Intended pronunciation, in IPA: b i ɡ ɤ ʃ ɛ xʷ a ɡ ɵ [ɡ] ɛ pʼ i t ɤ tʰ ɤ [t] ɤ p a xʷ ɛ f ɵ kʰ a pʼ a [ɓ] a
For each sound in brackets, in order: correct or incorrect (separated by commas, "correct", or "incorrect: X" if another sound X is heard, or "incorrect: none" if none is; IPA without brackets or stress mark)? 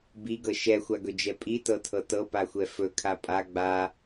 incorrect: d͡ʒ, correct, incorrect: ɡ͡b